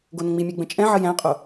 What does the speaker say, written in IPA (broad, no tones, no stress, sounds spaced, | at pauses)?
ɡ o n ə̃ ŋ͡m i mʲ ɛ ɡ͡b ə̃ t͡ʃʼ ɛ̃ ʕ ə j æ̃ qʼ o